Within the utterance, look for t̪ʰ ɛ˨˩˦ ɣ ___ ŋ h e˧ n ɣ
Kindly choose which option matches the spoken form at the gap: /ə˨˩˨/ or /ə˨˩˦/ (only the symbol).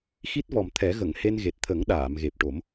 ə˨˩˨